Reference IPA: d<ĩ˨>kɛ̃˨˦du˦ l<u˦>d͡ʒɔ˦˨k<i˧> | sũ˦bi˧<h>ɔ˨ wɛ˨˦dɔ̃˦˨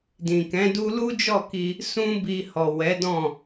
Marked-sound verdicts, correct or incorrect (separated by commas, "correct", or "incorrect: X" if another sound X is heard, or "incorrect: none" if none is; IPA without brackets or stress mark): correct, correct, correct, correct